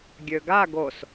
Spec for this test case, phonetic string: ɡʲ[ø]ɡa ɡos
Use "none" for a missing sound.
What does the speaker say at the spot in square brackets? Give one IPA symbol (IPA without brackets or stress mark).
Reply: ø